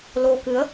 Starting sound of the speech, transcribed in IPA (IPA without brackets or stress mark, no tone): l